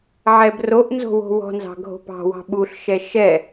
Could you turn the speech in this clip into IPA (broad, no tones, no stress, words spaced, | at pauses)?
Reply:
ʕɛbroʔnzo̤ wo̤wɔ̤nzɑ̤ ɡʱo̤pɑ̤wɑ̤ ɓuɬʃɛ ʃɛ